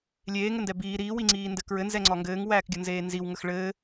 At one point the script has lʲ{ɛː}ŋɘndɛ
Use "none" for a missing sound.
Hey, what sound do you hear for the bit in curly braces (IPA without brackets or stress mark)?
eː